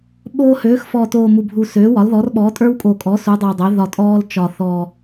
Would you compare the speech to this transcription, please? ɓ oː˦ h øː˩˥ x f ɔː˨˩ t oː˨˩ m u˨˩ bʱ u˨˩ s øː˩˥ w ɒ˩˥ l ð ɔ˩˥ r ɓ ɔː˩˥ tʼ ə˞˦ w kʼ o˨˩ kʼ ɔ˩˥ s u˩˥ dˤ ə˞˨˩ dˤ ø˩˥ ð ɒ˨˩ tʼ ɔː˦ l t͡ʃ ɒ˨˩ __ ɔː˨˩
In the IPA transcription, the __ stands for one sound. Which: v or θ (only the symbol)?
θ